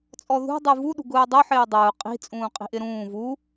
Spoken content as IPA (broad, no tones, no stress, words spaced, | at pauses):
t͡sʼɔðṳ dˤuvu ɗṳɡʊːdˤʊ ħɪːdˤʊː qʼi̤ t͡sʼũːqʼi̤ʔɪɾũː vu